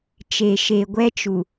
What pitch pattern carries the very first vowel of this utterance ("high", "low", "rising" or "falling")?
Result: low